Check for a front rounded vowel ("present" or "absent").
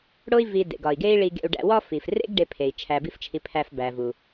absent